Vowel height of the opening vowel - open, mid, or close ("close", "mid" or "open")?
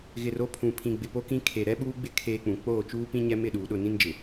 close